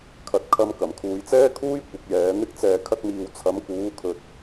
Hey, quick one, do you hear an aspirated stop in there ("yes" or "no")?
yes